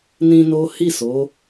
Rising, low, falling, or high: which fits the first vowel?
high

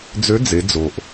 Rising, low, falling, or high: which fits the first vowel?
rising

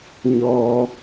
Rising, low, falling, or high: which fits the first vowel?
low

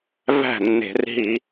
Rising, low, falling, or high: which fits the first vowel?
falling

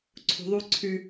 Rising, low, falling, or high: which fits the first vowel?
low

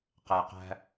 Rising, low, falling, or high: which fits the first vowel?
low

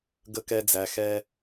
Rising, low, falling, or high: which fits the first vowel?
high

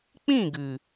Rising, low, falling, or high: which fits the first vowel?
falling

